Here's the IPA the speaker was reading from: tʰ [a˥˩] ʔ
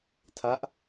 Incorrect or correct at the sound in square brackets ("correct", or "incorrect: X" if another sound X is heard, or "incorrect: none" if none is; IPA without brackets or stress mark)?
incorrect: a˦˥